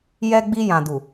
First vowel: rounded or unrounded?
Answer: unrounded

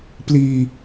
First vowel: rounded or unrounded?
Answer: unrounded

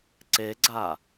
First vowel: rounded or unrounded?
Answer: unrounded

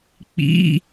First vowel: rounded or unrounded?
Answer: unrounded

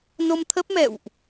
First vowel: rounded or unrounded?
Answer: rounded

